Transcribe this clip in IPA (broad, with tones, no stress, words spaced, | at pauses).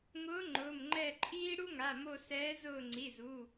ŋʊː˧˥ ŋ͡ǃʊː˩˧˩mŋ͡ǃɛ˦˨ǃʼiː˥ ɽu˥ŋa˩˧˩mo˦˨ sɛː˧˥ zʊː˦˨ŋ͡ǀi˩˧˩zu˩˧˩